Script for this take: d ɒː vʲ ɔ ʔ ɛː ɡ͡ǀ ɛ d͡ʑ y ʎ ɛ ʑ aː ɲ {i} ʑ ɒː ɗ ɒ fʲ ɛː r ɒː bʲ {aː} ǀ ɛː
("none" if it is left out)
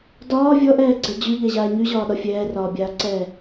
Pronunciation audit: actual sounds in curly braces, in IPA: y, aː

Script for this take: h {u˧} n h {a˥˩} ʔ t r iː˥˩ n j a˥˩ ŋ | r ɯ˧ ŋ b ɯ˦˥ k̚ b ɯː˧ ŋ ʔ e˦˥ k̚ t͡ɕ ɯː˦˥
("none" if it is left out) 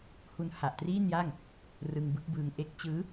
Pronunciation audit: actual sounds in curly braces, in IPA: u˧, a˨˩

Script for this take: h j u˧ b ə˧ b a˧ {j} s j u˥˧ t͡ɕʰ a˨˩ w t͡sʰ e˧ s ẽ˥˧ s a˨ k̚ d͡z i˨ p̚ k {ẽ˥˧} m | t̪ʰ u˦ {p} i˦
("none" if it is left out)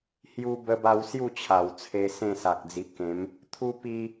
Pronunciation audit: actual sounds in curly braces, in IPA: w, ẽ˨˦, p

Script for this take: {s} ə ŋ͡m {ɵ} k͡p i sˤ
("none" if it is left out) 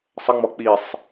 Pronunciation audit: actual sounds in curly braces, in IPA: sˤ, ɔ

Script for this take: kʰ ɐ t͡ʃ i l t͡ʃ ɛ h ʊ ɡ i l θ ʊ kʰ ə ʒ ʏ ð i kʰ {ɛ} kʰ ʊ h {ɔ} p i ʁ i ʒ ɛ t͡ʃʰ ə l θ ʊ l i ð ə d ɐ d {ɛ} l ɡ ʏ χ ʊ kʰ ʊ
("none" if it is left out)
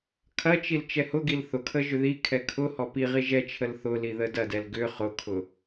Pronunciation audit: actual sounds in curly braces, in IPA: ɛ, ɔ, ɛ

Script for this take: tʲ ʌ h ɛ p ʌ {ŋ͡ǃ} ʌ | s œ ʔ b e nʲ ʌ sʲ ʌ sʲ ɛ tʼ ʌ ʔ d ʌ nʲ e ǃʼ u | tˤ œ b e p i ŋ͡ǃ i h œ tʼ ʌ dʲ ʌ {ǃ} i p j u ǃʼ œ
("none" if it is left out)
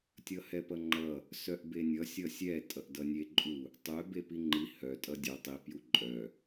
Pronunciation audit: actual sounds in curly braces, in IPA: ŋ͡ǃ, tˤ

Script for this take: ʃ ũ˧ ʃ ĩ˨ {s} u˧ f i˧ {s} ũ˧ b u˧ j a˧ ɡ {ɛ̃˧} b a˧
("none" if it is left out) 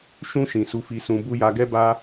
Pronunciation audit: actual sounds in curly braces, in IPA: s, s, ɛ˧

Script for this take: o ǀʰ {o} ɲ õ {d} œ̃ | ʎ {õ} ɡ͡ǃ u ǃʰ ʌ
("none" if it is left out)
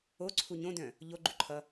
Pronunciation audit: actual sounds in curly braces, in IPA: u, d, o

